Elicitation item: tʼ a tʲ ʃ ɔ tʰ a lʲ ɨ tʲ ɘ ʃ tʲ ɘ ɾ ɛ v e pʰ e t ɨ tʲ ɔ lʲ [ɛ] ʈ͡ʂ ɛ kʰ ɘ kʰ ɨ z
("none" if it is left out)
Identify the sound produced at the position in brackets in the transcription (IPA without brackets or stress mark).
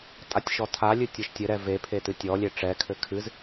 e